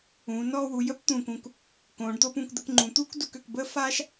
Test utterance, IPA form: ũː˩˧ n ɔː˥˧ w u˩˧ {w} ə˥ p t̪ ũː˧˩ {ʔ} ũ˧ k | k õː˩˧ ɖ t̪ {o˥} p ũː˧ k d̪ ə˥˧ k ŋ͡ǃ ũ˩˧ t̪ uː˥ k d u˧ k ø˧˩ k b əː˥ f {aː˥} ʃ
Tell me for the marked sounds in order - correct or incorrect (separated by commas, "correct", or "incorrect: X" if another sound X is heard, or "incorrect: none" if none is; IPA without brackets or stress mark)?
incorrect: j, incorrect: k, correct, correct